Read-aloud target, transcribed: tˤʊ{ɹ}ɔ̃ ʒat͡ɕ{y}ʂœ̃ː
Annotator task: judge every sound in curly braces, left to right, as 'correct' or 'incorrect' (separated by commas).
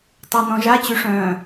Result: incorrect, correct